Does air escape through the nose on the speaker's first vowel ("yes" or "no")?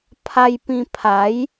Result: no